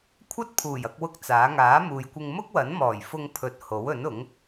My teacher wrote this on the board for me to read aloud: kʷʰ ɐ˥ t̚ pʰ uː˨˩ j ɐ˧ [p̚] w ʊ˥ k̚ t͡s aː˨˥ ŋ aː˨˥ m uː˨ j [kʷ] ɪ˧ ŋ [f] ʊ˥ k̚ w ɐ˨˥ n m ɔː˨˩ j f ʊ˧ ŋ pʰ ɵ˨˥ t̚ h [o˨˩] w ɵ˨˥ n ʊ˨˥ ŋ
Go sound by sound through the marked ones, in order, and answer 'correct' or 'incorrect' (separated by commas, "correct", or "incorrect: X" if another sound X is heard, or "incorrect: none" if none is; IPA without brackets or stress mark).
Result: incorrect: k̚, correct, incorrect: m, incorrect: o˨˥